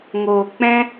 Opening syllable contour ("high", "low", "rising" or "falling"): low